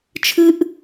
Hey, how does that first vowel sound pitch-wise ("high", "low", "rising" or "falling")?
high